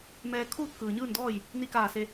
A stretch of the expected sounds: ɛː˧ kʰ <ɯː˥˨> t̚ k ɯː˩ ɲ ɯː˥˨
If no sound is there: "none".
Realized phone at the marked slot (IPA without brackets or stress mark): uː˥˨